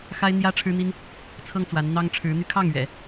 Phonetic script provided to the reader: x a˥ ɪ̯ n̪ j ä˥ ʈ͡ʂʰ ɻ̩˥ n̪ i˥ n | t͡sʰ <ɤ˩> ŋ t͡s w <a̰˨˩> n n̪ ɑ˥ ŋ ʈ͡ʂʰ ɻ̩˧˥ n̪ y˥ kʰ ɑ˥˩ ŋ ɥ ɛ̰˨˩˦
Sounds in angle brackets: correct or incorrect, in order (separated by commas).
incorrect, incorrect